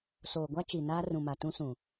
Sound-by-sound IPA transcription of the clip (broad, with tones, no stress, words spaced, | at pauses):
soː˨ɡʷa˦ t͡ʃi˨naː˦ rũ˨ma˨ tũ˦sũ˨